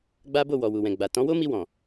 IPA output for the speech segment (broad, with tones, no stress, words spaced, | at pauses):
ɡ͡ba˦bo˦˨wɔ˨ wu˨wɛ̃˨ ɡ͡ba˨ tɔ̃˨˦wo˦mi˧ wɔ̃˨